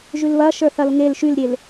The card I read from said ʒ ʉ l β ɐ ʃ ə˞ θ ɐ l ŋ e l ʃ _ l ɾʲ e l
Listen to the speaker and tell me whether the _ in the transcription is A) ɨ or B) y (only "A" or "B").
B